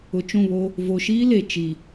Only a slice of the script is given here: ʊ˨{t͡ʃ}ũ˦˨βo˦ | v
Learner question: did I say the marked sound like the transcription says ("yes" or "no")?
yes